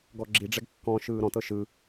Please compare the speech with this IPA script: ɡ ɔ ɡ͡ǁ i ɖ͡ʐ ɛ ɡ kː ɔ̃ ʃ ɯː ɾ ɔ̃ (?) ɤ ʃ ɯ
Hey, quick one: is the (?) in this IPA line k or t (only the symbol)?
t